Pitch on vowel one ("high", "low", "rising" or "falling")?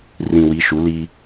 low